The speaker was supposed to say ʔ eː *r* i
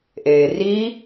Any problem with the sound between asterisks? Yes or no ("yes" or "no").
no